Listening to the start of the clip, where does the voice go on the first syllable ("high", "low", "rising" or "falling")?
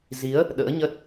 rising